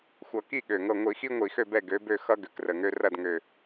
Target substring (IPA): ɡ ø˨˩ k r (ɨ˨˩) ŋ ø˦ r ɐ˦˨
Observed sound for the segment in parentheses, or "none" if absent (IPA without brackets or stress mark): ə˨˩